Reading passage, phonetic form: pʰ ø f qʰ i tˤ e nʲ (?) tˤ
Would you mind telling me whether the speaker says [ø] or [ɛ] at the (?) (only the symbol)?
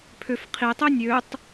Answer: ø